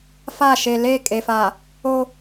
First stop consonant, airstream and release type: ejective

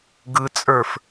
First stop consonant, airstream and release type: plain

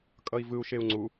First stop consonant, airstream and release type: ejective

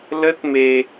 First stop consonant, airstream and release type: plain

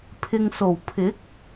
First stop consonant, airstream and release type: aspirated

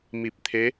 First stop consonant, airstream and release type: plain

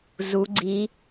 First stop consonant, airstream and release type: click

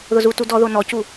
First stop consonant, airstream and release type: plain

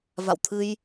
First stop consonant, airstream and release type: aspirated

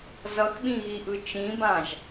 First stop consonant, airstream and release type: implosive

